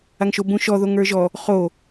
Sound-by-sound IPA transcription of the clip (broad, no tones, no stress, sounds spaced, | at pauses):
a ŋ ʃ o b ũ ʃ ɔ ð o ŋ ə˞ ʒ ɔ | χ o